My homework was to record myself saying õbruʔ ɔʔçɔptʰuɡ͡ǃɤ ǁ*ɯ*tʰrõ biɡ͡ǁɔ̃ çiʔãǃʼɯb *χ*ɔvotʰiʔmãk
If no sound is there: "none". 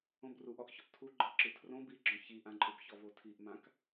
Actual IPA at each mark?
ɯ, ç

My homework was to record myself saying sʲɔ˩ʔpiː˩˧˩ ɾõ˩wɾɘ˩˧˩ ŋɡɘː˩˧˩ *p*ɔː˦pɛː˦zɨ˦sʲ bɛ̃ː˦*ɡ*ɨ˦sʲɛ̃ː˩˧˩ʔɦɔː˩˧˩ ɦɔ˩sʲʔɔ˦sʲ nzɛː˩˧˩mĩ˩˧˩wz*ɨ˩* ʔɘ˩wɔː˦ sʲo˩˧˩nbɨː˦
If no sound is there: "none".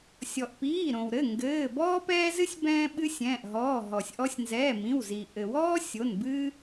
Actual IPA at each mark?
b, ɓ, i˩

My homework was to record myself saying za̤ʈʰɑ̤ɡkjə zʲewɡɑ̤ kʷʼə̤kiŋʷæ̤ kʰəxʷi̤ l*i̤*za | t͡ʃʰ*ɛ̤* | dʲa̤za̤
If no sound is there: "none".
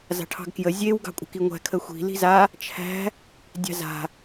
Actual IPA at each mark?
i̤, æ̤

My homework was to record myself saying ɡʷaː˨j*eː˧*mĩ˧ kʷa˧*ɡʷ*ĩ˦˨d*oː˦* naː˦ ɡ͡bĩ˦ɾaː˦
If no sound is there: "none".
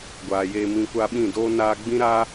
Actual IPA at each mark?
eː˧, ɓ, oː˦

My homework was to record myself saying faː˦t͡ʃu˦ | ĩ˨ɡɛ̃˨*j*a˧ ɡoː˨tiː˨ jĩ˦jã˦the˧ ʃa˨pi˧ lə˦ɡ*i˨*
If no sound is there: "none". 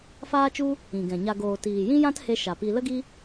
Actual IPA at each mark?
ɲ, i˦

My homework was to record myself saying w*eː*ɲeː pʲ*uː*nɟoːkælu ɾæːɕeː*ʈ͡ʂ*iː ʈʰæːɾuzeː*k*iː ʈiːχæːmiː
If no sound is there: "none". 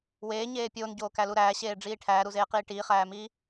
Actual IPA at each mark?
eː, oː, ɖ͡ʐ, q

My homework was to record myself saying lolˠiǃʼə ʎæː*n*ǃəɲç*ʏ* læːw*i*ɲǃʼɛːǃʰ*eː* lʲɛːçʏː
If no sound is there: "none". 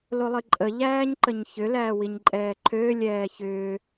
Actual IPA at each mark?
ɲ, ʏ, i, øː

